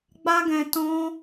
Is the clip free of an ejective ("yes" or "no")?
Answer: yes